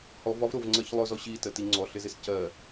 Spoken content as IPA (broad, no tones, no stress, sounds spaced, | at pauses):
h ɔ v ɒ v ɾ ʊ v ŋ͡ǀ ɜ ç lˠ ʊ z ɔ ɕ i t ə t i ŋ͡ǀ ɔ ɬ ɪ z ɪ s c ɜ